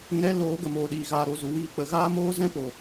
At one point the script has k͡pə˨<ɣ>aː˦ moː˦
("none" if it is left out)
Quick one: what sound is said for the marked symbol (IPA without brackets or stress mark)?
ɣ